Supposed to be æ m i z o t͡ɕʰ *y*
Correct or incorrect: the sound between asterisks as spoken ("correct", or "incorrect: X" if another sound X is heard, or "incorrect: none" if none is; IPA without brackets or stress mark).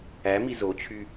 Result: correct